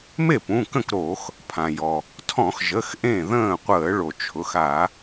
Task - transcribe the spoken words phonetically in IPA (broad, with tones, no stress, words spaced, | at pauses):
me˥˩ pũ˩˧˩kə̃˥˩kɾo˧˩˧x | pʰã˩jɔ˩ | tʰɔ̃˧˩˧xʒə˩˧˩x ʔẽ˥˩ ðə̃ː˥˩qʷəː˧˩˧ɭo˩t͡ʃʰʊ˩˧˩x a˧˩˧